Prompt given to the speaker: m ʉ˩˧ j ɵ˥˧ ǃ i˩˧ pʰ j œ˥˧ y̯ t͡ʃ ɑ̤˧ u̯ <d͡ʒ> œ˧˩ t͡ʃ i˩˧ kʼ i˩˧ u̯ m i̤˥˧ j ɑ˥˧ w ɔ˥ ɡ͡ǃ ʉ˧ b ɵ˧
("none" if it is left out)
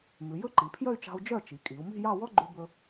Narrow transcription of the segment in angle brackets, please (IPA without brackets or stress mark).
d͡ʒ